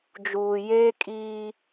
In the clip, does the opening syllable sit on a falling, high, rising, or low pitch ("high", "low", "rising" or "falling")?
low